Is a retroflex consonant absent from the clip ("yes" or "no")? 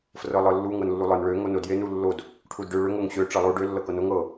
no